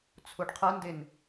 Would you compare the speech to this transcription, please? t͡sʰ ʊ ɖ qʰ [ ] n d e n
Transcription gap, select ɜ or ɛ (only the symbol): ɜ